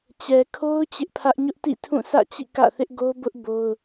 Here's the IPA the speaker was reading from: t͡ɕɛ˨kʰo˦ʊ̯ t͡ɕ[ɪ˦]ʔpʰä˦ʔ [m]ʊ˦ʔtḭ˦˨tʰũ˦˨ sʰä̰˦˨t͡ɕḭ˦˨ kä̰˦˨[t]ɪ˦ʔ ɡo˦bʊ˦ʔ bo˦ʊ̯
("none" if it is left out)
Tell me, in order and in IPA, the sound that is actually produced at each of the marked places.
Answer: ɪ˦, ɲ, θ

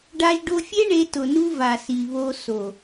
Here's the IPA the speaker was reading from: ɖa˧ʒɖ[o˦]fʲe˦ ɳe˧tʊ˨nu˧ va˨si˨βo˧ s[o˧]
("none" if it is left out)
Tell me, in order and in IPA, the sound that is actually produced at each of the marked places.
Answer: o˧, o˨

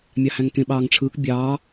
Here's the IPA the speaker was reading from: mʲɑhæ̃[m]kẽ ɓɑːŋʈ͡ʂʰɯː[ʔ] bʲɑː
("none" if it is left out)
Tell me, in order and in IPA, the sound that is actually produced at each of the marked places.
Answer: ŋ, k

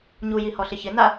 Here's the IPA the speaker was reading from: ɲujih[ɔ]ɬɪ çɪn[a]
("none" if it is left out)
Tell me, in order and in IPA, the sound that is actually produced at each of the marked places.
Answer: ɔ, a

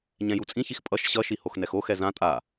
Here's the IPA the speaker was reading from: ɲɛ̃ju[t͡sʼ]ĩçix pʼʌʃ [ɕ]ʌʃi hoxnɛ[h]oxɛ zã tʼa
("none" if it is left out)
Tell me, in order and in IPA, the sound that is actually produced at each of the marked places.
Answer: t͡sʼ, ɕ, x

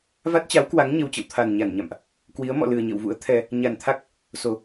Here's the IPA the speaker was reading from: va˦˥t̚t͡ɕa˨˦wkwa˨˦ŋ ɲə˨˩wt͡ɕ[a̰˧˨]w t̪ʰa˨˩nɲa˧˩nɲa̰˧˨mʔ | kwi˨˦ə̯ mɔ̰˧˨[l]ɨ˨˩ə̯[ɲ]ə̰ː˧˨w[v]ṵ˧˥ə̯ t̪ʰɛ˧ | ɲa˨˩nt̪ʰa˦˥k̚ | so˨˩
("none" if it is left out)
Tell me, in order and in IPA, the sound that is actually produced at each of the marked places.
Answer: ə̰˧˨, l, ɲ, v

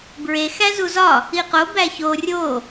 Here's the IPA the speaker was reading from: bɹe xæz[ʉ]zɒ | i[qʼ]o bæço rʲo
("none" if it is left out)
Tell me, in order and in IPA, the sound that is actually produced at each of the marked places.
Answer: u, q

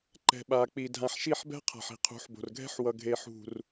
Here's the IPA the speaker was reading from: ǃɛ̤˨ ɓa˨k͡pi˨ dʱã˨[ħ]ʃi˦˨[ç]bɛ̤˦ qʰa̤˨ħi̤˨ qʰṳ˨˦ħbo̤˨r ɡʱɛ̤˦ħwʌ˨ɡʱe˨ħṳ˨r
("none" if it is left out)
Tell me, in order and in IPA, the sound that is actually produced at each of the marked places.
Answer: ħ, ħ

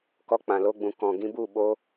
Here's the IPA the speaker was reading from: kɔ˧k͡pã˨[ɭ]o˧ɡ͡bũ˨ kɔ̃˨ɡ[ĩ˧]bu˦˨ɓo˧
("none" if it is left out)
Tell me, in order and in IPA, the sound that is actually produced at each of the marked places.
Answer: l, ĩ˧

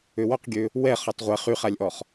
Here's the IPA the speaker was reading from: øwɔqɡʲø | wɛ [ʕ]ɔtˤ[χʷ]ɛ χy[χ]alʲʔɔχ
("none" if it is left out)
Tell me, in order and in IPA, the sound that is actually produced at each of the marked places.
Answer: χ, ʁʷ, χ

